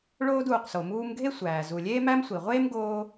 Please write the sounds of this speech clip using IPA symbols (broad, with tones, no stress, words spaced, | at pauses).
ɭoː˧d uː˩qso˩muː˧mɡʱe˥ sʷæː˩ zu˩lʲeː˥mæ˥msʷi˩ ʁʷeː˥m ɡoː˧